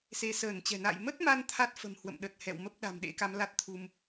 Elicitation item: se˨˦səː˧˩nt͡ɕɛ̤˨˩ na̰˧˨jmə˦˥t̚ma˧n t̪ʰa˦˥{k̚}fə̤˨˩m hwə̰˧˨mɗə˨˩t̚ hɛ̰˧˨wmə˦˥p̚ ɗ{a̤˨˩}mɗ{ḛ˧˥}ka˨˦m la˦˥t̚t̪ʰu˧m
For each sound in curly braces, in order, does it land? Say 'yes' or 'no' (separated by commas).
no, yes, yes